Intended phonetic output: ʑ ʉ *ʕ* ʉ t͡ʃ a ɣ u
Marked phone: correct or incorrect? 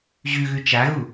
incorrect